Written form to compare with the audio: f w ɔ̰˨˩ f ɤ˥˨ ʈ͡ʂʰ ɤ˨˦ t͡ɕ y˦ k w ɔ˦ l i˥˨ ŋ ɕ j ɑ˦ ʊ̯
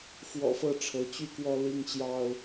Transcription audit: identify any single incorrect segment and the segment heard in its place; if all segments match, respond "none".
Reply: i˥˨ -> i˦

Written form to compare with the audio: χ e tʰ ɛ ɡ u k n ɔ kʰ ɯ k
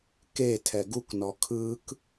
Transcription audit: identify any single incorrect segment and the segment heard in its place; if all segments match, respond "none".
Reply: χ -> k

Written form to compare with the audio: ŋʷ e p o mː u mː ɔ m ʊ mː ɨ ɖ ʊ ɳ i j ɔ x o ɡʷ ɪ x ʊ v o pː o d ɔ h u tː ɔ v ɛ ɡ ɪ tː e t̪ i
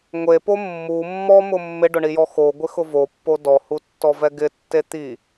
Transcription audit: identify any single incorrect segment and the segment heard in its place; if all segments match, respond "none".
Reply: ɨ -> ɪ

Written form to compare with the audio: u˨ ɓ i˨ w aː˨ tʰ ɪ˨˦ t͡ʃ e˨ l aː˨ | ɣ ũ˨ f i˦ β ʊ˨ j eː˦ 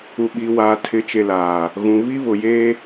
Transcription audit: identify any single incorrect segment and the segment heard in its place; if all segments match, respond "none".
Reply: f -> β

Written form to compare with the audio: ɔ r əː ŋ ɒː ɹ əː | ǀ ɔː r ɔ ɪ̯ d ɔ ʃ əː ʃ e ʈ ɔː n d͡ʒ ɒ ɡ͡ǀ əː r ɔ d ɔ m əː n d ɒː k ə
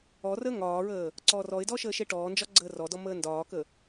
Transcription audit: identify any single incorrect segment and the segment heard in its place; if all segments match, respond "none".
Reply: none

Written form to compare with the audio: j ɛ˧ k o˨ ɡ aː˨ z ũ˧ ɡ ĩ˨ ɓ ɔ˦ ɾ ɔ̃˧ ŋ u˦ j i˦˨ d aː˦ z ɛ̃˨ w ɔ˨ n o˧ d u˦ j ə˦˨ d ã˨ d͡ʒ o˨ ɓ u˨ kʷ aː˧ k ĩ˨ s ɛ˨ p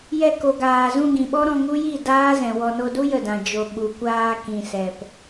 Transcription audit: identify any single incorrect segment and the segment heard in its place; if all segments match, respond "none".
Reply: none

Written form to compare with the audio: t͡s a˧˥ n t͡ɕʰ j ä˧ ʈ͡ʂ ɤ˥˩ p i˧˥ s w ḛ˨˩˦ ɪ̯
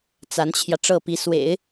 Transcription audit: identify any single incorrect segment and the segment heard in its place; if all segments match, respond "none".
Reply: none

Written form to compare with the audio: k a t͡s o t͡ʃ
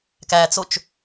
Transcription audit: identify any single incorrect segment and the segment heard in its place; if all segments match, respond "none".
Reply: a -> æ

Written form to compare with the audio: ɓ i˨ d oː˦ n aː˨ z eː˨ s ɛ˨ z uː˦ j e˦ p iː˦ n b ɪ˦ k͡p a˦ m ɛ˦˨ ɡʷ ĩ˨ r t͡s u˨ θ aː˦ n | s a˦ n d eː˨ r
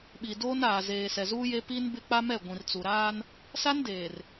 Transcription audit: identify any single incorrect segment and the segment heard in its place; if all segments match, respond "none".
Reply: θ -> ɾ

